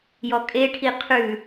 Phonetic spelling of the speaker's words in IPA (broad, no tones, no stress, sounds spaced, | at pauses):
j ɔ kʼ e ʈʰ i qʰ ʉ